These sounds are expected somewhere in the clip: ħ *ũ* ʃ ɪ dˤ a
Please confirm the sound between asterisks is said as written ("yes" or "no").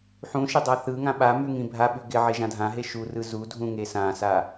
yes